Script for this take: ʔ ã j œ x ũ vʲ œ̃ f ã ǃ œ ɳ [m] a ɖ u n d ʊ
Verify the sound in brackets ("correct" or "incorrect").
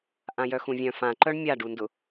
incorrect